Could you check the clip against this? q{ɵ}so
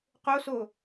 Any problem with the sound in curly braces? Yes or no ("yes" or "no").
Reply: yes